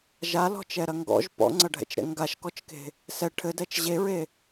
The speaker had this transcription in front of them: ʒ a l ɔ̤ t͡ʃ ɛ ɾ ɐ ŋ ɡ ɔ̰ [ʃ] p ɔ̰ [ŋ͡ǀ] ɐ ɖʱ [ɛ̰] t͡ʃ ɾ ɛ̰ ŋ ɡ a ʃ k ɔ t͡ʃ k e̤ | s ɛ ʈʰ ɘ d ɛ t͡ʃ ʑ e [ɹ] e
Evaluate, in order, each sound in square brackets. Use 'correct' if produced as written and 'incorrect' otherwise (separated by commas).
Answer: incorrect, correct, correct, correct